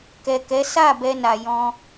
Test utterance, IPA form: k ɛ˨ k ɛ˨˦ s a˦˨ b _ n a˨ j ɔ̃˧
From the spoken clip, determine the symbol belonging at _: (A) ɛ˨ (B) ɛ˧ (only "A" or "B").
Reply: B